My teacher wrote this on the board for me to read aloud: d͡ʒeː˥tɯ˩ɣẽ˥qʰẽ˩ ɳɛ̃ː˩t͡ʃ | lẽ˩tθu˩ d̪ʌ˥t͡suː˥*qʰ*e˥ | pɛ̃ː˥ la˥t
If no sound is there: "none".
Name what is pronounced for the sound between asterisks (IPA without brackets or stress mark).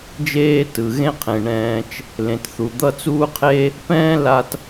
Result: qʰ